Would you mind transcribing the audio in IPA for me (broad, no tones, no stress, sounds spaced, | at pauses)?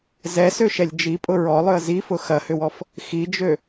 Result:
z ɛ s ø ʃ ɛ lʲ d͡ʒ i pʼ ʊ ɹ ɔ lˠ ʏ ə̯ z i f ʊ x ɐ h ʏ w ɔ f | x i d͡ʒ ø